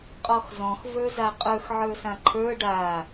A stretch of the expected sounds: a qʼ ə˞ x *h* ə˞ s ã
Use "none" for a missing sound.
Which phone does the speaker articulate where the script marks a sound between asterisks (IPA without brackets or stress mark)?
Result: ʕ